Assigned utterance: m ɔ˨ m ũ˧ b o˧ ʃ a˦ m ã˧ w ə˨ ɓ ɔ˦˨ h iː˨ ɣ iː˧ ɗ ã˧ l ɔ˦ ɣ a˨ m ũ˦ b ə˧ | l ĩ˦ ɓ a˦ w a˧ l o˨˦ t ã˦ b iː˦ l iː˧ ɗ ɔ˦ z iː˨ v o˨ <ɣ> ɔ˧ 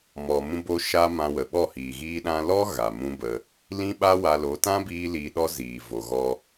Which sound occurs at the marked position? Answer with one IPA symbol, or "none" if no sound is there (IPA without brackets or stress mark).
ɣ